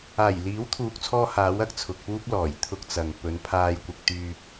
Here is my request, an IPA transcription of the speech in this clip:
aː˨˩ j l iː˨˥ w t̪ʰ uː˨ k̚ t͡sʰ ɔː˧ h aː˨˥ w ɐ˥ k̚ t͡sʰ ʊ˨ k̚ p uː˥ p̚ l ɔː˨˩ j t̪ʰ ʊ˥ k̚ t͡s ɐ˨ ŋ p ɵ˨˧ n pʰ aː˧ j kʷ ɪ˧ k̚ t̪ yː˧ p̚

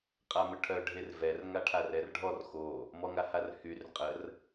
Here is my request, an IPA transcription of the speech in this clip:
qʼ a m ə ʈʰ œ ɖʱ e r v ɛ r ŋ a ʈʰ a r ɛ r ɖʱ ɔ r x o | m ɔ ŋ a h a r h y r qʼ ə r

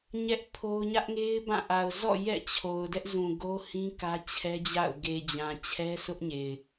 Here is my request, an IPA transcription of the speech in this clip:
ɲ ɛ˦ ʔ pʰ o˦ ʊ̯ ɲ ä˦ ʔ ŋ e˦ ɪ̯ b ã˦˨ ʔ a˨ ʊ̯ z ɔ̰˦˨ j ɛ̰˦˨ t͡ɕʰ o˨ ʊ̯ d ɛ˦ ʔ z ũ˨ ɡ o˦ h ĩ˦ k ä˦ t͡ɕʰ ɛ˦ d͡ʑ a̰˦˨ ʊ̯ ɡ e˨ d͡ʑ ã˨ t͡ɕʰ ɛ˦ sʰ ʊ˦ ʔ ɲ e˨ ɪ̯

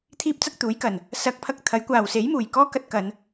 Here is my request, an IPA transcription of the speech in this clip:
t̪ʰ iː˥ p̚ t͡s ɐ˥ k̚ t̪ uː˨˥ j k ɐ˨ n | s ɐ˧ k̚ pʰ ɐ˥ k̚ t̪ʰ ɐ˨˥ j kʷ aː˨ w s e˨˥ j m uː˨˩ j k ɔː˥ k ɐ˧ t̚ k ɐ˨˧ n

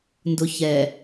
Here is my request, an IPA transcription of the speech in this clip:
n d ʊ ç ɛ

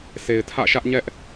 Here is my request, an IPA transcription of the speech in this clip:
sʰ e˨ ɪ̯ tʰ ä̰˦˨ ʃ ä˦ ʔ ɲ ɛ˦ ʔ

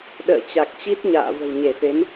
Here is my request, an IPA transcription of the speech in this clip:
ɗ ə̰ː˧˨ t͡ɕ a˨˩ k̚ t͡ɕ i˦˥ t̚ ɲ a̰ː˧˨ v ə̤˨˩ w ɲ e˧˩ f e˨˦ m

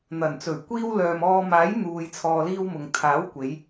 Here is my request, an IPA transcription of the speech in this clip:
n̪ ɐ˨˩ n t͡s ɵ˨˩ ɥ kʷ iː˧ w l œː˨ m ɔː˧ m aː˨˥ j n̪ uː˨ j t͡sʰ ɔː˨ l iː˧ w m ʊ˨ ŋ t̪ʰ aː˨˥ w kʷ e˨˧ j

